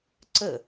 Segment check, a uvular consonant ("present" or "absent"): absent